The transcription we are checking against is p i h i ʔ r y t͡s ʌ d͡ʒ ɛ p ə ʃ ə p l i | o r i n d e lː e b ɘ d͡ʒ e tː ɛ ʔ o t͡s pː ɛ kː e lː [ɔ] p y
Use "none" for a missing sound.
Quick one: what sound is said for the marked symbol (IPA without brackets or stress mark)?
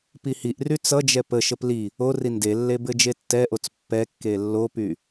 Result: o